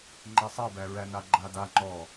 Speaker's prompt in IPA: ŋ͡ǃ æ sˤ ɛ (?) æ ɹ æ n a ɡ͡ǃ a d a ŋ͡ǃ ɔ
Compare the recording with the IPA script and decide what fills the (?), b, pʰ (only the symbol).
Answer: b